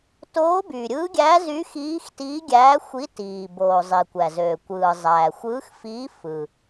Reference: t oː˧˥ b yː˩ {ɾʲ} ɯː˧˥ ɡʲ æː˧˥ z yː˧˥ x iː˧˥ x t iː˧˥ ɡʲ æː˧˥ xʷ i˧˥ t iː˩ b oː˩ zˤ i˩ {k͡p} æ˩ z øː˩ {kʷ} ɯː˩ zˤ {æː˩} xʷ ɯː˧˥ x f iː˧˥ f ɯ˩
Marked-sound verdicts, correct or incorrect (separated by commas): correct, incorrect, correct, correct